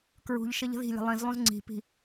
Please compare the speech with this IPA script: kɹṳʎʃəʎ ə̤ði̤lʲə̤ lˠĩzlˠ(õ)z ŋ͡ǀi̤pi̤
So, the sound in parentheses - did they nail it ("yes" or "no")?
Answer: no